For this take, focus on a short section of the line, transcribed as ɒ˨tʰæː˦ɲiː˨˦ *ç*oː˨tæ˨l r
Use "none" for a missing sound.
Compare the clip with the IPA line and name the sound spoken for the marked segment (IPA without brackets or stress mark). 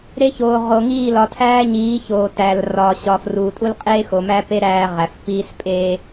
ç